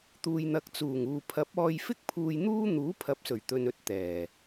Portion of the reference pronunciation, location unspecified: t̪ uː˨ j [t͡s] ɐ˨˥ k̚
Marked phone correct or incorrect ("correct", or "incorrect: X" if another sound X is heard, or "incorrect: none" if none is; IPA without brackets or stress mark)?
incorrect: n̪